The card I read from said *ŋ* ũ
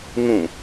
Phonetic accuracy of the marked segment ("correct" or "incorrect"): correct